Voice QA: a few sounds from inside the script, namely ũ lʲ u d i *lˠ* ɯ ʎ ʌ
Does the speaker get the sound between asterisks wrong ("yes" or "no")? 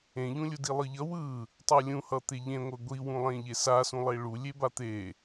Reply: no